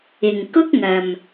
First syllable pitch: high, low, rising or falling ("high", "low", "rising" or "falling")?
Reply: low